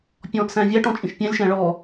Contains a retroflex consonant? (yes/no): yes